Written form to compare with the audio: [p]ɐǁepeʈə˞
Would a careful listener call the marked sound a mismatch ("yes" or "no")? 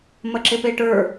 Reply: yes